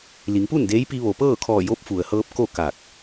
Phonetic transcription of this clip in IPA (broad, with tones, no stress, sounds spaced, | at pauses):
l i˩˧ ŋ p u˥˨ n d eː˧˥ j p i˧ ʋ o˩ p ɤː˥˨ kʰ ɔː˧˩ j o˧˥ p̚ f u˩ ə̯ h ɤː˧ p̚ k o˥˨ k aː˧˩ k̚